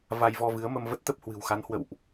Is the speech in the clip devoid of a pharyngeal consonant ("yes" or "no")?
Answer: yes